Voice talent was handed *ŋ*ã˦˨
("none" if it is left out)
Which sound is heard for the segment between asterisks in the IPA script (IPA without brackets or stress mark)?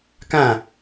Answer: k